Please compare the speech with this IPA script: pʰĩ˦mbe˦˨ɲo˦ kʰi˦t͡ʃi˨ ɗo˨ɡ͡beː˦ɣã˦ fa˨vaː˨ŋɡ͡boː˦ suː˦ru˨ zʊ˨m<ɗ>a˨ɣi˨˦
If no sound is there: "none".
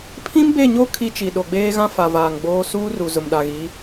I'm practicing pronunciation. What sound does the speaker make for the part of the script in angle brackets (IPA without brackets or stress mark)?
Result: ɗ